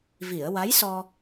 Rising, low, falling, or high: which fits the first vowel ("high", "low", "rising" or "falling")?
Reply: low